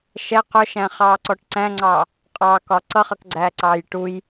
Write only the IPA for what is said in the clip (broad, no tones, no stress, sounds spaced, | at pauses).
ʃ ɛ q ʊ ʃ æ̃ χ ɑː ǀ ɔ ʈ ǀ æ̃ ŋ͡ǀ ɑː | qʼ ɑ k ɒ ǀ ʌ χ ʌ k ɡ͡ǀ æː ǀ ɑː j ʈ u j